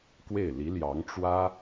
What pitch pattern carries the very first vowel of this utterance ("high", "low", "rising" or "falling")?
falling